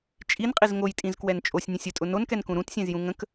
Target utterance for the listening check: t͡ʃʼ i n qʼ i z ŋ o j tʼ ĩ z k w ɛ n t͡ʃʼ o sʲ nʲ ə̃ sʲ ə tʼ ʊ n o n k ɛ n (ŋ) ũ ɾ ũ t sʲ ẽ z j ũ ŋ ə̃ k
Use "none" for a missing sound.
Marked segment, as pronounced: k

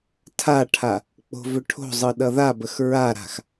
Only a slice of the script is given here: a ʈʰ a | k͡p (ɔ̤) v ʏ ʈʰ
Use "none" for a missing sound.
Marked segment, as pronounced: o̤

